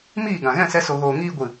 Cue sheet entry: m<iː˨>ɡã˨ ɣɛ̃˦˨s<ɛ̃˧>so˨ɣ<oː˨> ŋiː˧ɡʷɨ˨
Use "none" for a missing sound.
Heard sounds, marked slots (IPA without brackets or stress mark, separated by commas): iː˦˨, ɛ˧, oː˨